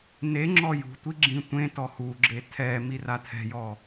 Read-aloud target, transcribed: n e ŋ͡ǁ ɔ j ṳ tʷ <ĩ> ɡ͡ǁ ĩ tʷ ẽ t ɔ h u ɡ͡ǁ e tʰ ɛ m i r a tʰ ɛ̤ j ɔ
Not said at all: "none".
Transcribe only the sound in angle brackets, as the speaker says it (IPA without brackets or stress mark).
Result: i